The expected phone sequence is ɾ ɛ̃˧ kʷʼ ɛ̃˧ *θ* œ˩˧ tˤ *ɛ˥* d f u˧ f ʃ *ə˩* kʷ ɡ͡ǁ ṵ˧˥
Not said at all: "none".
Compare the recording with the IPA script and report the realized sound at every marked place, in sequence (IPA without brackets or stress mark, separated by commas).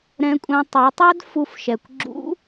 tˤ, œ˥, ɛ˩